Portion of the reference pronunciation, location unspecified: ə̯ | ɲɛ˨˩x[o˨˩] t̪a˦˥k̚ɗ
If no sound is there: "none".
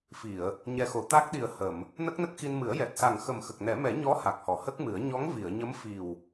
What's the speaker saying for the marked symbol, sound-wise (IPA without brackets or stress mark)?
o˨˩˨